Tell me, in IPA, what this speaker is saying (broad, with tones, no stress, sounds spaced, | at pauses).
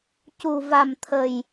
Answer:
c u˧ v a˧ m t̪ʰ ə˧ j